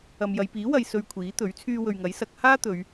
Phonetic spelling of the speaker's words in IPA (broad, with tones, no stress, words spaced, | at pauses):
ɐ˨mjɐ˨˧jpiː˨˥ wɐ˨j sɵ˧ɥkʷʰiː˨˥t̪ɵ˨˥ɥ t͡sʰyː˧wɵ˨ɥŋɐ˨˥jsɐ˨˥k̚ haː˥ t̪ɵ˨˧ɥ